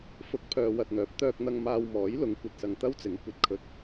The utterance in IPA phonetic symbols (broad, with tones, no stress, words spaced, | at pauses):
fʊ˨k̚ pʰœː˨wɐ˨t̚ŋœː˨˥p̚ t̪œː˧k̚n̪ɐ˧ŋmaː˧wmɔː˨˥j lʊ˨˧ŋkʷɐ˧t̚ sɐ˨ŋt̪ɐ˥wt͡sɪ˨˥ŋ kʷɐ˧t̚kʰɵ˧t̚